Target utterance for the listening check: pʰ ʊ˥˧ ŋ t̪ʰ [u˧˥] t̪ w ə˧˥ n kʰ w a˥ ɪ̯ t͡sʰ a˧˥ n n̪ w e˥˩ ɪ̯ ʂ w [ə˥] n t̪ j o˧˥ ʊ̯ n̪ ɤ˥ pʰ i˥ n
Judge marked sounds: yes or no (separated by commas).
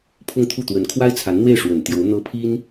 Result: no, no